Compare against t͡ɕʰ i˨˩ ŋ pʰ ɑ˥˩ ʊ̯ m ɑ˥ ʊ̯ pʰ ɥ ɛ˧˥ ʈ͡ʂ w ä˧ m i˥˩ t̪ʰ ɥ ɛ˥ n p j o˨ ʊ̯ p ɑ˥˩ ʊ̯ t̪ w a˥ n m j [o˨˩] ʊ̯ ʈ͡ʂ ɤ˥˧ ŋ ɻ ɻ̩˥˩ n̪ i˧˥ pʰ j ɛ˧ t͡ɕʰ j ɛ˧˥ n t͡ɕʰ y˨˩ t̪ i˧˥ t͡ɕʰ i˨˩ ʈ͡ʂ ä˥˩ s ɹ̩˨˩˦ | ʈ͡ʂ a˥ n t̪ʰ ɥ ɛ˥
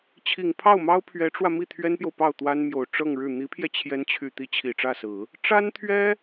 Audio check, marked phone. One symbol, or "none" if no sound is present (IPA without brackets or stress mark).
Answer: o˨˩